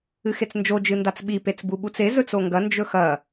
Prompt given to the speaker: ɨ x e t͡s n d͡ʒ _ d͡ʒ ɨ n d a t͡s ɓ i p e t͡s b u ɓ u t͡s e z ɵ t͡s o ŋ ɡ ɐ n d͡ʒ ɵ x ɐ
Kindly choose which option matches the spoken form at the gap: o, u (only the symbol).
o